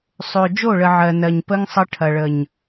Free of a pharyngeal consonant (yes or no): no